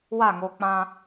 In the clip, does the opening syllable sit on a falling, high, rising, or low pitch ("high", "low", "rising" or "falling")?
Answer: falling